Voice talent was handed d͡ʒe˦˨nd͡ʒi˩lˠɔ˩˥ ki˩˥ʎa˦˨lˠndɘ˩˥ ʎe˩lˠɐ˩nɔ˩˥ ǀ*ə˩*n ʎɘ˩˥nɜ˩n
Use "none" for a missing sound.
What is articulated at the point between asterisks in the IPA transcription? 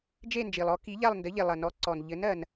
ɔ˩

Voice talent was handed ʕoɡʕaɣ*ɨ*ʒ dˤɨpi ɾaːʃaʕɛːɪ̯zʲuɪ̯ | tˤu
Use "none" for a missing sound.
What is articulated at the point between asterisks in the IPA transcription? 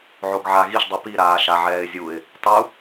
i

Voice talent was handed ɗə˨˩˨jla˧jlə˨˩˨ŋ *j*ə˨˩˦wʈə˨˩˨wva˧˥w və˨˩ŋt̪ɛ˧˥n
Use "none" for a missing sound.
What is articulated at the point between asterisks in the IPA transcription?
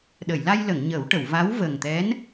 ɲ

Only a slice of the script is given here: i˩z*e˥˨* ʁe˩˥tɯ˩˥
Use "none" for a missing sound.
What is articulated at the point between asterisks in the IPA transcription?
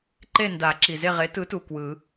e˥˨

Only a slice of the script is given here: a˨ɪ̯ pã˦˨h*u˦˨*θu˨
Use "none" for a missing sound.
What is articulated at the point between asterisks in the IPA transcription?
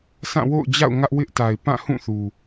ũ˦˨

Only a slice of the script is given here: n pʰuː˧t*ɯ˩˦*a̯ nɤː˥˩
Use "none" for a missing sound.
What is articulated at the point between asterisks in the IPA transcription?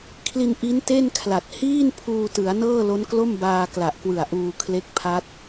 ɯ˩˦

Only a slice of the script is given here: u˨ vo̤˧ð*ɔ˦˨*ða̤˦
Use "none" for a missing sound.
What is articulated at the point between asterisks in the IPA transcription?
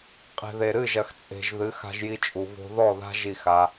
ɔ˦˨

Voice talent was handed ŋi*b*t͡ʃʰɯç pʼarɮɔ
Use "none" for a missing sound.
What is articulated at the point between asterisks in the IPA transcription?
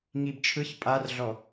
b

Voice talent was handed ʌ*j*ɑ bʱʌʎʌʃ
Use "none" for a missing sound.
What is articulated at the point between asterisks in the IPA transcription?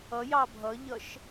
j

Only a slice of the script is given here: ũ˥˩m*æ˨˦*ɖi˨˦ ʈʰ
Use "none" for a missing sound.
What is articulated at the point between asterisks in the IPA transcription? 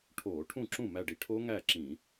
æ˧˩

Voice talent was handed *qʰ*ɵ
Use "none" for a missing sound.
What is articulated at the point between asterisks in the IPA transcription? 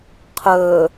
qʰ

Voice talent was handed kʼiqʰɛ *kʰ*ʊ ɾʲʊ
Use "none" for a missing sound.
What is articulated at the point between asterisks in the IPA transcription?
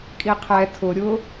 tʰ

